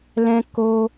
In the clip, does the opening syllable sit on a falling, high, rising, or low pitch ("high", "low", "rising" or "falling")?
high